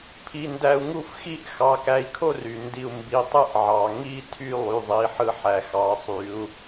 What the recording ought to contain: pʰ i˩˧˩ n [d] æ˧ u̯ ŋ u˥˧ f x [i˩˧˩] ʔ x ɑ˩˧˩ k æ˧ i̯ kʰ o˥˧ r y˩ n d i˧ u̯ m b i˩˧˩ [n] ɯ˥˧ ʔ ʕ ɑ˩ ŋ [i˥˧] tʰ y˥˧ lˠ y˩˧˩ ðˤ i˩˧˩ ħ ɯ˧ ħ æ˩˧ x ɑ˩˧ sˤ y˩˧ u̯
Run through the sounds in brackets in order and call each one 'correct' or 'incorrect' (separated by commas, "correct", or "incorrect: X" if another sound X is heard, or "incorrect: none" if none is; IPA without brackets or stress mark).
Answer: correct, incorrect: i˥˧, incorrect: tˤ, correct